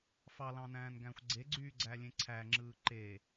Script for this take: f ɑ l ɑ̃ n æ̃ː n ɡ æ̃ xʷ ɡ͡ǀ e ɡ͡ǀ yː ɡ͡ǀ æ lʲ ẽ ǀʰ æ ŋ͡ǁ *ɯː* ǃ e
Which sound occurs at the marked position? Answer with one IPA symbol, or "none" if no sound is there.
ɯː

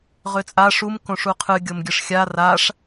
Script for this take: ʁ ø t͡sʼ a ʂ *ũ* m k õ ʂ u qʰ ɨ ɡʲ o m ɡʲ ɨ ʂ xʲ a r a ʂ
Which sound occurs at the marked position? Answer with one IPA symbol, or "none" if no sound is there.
u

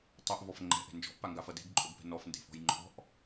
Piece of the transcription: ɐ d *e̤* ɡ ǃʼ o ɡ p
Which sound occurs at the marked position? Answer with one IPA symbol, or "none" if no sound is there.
e̤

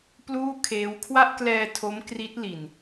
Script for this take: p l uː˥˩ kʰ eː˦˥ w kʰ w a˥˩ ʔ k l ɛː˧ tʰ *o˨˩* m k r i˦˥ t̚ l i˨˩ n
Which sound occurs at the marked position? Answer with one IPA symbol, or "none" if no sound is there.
o˦˥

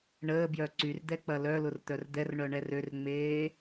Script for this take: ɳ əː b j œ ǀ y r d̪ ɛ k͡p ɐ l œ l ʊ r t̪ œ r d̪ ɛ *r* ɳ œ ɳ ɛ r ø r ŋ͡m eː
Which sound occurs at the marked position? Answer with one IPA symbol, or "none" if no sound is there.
r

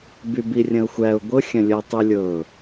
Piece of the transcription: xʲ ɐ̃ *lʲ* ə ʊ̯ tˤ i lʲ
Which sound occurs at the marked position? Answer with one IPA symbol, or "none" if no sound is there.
lʲ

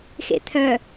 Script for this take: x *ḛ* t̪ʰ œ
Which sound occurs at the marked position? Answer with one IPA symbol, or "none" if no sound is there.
ḛ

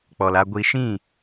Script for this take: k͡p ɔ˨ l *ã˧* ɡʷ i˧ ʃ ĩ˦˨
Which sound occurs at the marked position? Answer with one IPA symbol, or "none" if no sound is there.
a˧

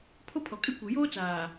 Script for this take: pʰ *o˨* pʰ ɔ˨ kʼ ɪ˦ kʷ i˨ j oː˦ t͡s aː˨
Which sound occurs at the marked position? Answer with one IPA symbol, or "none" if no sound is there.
o˦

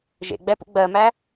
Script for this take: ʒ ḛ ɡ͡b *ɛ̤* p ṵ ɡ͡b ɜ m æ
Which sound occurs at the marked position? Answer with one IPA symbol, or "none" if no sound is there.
ɛ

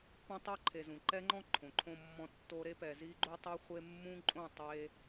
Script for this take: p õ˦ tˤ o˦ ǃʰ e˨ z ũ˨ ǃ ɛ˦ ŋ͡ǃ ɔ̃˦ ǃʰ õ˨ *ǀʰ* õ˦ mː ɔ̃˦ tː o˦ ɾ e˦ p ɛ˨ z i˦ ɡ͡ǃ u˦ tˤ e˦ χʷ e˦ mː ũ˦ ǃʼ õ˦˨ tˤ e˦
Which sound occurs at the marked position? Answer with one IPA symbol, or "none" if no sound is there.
ǃʰ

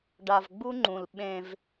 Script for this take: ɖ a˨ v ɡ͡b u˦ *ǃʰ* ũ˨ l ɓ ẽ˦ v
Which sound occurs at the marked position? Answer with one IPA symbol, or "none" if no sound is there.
ŋ͡ǃ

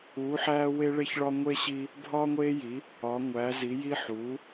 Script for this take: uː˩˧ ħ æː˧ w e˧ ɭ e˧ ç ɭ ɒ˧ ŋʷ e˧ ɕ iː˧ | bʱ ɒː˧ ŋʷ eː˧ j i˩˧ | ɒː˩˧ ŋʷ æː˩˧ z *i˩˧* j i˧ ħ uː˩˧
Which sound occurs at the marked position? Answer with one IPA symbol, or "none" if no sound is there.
i˩˧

